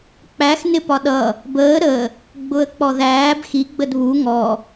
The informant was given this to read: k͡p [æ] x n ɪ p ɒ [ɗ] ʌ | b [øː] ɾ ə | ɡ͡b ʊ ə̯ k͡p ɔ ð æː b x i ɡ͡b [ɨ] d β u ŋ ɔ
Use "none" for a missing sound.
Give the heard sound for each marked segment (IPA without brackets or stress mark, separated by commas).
æ, ɗ, əː, ə